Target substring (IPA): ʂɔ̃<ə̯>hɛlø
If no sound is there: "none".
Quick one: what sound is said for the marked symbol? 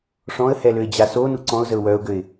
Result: ə̯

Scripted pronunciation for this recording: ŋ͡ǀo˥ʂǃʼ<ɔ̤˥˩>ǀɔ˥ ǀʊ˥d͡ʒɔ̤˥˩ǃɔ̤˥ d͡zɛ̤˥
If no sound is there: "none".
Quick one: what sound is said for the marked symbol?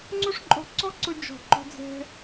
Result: ɔ̤˥˩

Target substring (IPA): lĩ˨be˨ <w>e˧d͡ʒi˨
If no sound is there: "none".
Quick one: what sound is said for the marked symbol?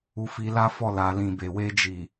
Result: w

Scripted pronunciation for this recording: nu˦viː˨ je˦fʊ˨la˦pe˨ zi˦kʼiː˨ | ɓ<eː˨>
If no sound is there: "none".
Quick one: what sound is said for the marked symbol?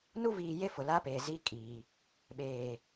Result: eː˨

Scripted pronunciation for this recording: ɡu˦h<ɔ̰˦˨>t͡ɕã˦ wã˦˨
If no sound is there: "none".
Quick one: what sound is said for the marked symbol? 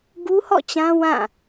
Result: ɔ̰˦˨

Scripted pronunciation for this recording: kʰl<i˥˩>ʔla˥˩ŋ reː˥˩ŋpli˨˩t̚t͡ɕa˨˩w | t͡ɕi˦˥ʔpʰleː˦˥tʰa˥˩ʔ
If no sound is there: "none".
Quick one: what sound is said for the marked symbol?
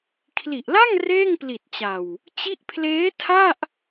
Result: i˨˩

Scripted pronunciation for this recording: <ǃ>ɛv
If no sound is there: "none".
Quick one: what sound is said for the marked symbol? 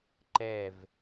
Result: ǃ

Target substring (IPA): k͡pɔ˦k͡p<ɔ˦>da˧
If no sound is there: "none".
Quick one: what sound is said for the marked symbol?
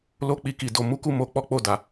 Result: o˦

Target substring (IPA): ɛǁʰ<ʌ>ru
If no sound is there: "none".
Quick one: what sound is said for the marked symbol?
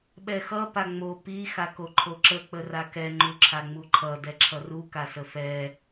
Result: ʌ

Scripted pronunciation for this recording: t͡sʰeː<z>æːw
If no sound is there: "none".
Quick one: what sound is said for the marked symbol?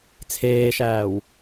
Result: ʃ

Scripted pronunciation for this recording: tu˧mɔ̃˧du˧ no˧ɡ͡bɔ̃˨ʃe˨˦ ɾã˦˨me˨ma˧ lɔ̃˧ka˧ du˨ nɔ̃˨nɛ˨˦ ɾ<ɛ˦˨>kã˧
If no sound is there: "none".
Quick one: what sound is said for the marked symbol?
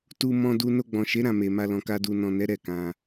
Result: ɛ˦˨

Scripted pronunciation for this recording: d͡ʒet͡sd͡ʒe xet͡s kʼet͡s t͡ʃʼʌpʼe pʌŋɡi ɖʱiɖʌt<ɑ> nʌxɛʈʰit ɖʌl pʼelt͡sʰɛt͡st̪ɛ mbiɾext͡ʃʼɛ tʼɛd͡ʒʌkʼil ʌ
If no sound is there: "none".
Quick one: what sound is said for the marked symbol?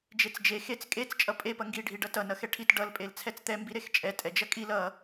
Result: ʌ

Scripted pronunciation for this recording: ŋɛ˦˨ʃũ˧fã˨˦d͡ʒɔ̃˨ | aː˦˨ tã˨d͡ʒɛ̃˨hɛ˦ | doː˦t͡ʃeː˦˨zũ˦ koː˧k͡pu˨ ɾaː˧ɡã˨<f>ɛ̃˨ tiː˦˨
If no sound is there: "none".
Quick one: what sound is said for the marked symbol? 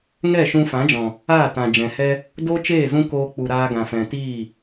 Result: f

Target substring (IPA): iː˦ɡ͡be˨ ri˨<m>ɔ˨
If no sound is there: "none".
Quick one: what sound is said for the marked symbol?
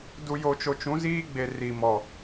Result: m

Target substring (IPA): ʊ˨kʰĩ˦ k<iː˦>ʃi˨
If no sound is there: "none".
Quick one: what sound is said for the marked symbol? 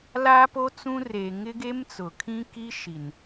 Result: i˦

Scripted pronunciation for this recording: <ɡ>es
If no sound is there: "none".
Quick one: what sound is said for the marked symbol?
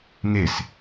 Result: ŋ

